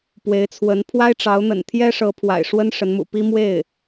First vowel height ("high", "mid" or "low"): mid